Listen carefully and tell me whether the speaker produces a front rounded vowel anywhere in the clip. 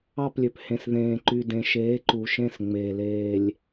yes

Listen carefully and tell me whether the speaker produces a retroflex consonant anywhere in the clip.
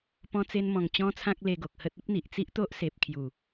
no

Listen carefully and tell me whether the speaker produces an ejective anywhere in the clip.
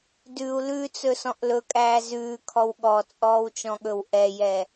yes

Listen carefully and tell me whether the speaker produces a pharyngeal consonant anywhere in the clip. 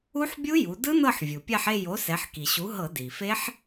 yes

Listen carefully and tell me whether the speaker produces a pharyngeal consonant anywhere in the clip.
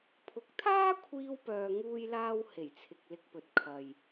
no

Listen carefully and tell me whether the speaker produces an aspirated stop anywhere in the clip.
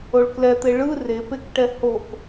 no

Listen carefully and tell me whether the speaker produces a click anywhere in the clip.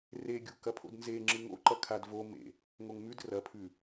yes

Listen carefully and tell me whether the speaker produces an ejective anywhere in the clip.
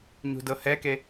no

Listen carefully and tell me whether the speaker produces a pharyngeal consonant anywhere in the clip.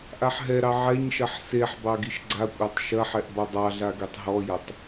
yes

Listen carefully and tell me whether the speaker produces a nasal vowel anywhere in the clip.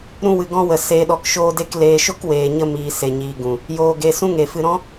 yes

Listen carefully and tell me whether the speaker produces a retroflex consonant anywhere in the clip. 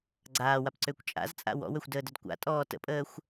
no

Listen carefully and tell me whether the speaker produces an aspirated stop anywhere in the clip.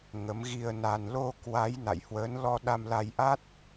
no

